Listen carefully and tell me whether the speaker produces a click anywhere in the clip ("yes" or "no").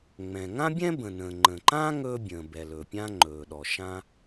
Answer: yes